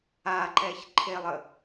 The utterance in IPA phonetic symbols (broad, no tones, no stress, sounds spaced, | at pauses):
a ǃ ɛ ç ǃʰ e lˠ ə